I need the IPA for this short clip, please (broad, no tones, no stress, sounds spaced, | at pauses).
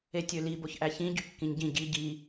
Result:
e tʲ ø l i b o ç ʔ æ ç ĩ ɟ y kː ĩ ɲ ɟ ĩ ɟ i ɟ i